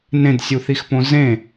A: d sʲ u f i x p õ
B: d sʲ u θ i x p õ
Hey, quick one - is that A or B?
B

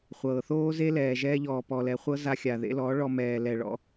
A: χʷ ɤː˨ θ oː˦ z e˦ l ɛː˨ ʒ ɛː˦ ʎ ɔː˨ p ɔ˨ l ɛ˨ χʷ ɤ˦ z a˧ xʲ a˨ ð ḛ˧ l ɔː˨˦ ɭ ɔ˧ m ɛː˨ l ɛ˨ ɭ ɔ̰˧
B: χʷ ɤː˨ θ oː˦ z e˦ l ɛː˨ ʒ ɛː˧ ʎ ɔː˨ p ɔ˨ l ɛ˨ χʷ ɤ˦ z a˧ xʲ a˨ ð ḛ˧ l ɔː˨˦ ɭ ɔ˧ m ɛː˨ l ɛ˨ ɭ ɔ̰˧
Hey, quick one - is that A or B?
B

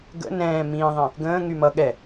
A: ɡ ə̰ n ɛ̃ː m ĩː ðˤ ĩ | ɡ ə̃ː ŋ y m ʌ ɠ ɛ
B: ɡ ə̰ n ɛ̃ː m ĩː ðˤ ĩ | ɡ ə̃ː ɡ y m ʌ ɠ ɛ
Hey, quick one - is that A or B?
A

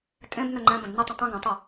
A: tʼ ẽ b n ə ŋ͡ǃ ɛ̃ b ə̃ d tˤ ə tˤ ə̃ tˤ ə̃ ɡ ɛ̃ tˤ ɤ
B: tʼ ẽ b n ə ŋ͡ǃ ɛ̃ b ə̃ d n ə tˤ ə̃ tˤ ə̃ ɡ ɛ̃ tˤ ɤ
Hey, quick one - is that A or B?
B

